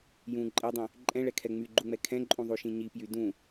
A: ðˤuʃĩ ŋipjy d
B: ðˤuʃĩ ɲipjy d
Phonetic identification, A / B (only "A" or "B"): B